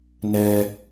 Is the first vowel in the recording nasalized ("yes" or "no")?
no